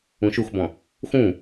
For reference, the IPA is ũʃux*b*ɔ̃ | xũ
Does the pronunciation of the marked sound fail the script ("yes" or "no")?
no